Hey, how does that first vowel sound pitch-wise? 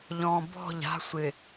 low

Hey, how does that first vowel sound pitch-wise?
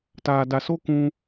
low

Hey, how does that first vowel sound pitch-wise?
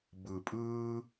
low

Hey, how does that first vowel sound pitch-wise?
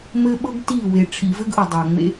high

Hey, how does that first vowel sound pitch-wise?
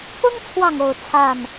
high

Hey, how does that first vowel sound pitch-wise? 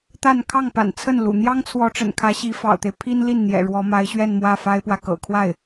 falling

